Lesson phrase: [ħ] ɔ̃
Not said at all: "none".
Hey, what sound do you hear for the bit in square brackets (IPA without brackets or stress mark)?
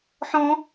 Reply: ħ